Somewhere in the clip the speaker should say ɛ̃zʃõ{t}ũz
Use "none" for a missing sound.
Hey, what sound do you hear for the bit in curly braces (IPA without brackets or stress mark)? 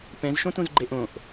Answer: t